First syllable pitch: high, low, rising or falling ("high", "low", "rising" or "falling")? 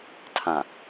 low